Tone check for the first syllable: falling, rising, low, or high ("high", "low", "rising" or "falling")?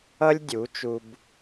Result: high